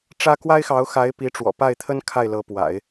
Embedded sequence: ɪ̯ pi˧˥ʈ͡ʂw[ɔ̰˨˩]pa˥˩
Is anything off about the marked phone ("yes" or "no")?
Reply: no